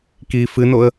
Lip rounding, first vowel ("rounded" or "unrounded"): unrounded